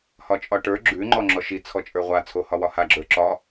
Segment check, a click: present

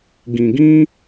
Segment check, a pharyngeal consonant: absent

